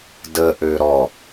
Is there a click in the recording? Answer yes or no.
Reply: no